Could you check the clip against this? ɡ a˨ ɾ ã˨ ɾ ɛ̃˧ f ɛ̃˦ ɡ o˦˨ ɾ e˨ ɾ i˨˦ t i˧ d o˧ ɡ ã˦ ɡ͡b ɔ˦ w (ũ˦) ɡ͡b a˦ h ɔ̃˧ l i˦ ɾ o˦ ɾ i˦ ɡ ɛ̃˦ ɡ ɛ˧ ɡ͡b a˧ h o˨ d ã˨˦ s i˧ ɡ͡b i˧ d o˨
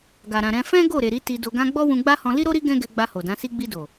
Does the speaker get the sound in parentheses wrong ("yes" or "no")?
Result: yes